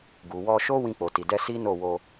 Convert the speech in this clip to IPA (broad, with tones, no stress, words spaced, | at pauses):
ɡu˨wɔ˧ʃo˦ wĩ˧k͡po˨ti˨dɛ˧ si˦no˦˨ wo˧